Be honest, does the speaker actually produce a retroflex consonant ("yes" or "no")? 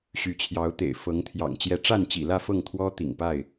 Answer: yes